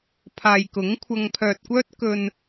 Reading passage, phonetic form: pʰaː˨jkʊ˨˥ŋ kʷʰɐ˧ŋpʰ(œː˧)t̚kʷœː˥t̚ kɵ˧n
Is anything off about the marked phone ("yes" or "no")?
no